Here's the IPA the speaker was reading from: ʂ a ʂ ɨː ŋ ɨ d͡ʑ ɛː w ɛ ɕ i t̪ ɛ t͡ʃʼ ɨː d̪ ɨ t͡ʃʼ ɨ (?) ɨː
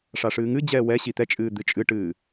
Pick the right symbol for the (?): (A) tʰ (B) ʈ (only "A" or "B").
B